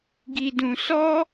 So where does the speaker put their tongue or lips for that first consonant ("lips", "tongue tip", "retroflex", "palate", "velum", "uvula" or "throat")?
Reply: velum